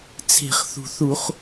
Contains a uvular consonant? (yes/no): yes